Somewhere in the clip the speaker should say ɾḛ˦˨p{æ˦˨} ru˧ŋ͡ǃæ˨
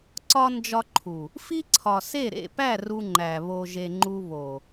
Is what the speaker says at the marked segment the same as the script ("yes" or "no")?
yes